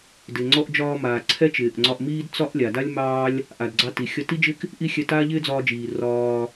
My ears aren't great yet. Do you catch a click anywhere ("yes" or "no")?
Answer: yes